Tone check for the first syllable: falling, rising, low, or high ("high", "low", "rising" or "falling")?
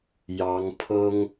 rising